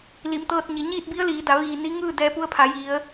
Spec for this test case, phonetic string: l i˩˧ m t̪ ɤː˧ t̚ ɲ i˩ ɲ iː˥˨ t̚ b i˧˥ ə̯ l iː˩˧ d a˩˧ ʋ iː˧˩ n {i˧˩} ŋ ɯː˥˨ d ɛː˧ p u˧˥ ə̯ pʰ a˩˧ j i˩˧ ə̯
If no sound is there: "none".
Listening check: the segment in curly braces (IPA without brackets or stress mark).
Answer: i˧˥